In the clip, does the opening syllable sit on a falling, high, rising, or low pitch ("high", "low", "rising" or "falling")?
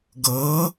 rising